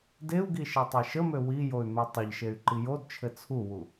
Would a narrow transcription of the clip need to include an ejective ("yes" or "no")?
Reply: no